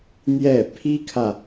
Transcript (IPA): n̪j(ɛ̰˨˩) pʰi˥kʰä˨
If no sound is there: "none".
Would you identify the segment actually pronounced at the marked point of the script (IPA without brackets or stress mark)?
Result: ɛ˥˩